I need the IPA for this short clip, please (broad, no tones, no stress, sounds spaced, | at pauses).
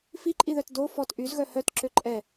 f i ǃʼ i ð œ t d o f ɔ t ʔ y z ɣ œ h œ t ǁ ø ǃʼ ɛ